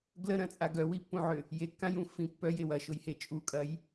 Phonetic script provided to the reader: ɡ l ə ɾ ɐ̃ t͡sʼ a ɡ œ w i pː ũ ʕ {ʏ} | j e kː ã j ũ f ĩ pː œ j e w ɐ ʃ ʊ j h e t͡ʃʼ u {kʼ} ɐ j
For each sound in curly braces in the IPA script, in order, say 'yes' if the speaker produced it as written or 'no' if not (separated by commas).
yes, yes